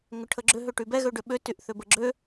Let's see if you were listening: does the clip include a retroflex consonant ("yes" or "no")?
yes